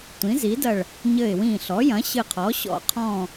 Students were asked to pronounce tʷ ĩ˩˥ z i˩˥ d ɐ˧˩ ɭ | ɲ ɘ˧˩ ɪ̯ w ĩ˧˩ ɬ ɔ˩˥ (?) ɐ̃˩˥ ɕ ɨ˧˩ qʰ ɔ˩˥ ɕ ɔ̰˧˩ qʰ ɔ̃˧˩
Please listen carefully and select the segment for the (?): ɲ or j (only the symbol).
j